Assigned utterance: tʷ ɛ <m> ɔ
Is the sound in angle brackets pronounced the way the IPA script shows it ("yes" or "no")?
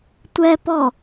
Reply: no